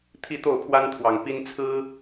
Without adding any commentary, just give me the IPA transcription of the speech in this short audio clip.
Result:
t̪ʰi˥˧t̪o˥˩ʊ̯pʰwa˥nt̪ʰwɑ˨˩ŋ pi˥n t͡sʰɹ̩˥

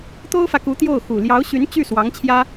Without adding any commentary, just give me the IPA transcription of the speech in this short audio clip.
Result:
t̪o˥ʊ̯fä˨ku˧˥ t̪jo˥˩ʊ̯xu˨˩ ljɑ˧˥ʊ̯ɕy˧˥n t͡ɕy˥˩ swɑ˧˥ŋt͡ɕʰjä˥

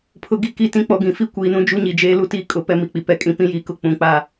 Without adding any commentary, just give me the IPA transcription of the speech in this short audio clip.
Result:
pʰʊ˨ɡi˦˨ki˦˨tĩ˦ k͡pɔ˨ɡĩ˨fi˦ kʷiː˨nũ˦ d͡ʒu˦ɲi˨d͡ʒeː˦ lu˦tiː˦ kʼʊ˨˦pɛ˦mi˨k͡pi˨ pɛ˦ kʼĩ˨pĩ˦jiː˨kʊ˦ k͡pũ˨˦k͡pa˦

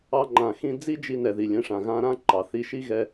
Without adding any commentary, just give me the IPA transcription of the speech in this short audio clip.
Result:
ɑ˧ŋ͡ǃã˨xĩ˧d͡zi˦ d͡ʒi˧nɛ˨ ði˨lʲɛ̃˨˦ʂã˨ ɣã˧ɾã˦ ǃɑ˨θi˧ ʃi˦ɣɛ˧

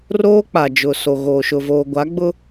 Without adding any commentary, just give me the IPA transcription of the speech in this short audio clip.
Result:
roː˦k͡pa˨d͡ʒʊ˨so˨ ɣoː˨ʃʊ˨voː˨ ɡʷa˨˦ɡ͡bʊ˦

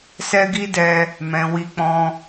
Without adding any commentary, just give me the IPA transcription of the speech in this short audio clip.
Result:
sɛ˦ɡi˦dɛ˧ | mɛ̃˨wi˧k͡pɔ̃˧

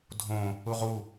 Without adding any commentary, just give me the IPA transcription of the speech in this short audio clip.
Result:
dʱõ | uʁu

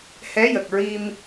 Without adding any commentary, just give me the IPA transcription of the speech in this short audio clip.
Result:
hɛ˧˥jə˨˩k̚ ɹi˧m

